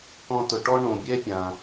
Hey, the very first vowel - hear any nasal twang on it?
yes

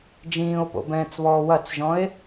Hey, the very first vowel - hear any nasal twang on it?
yes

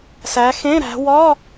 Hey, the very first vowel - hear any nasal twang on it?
no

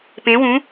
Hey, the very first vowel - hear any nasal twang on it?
yes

